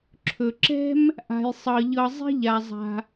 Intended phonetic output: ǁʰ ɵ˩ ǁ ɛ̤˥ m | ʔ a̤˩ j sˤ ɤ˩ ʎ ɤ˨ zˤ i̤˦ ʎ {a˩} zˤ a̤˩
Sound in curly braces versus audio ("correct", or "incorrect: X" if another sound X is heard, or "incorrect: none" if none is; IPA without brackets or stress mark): correct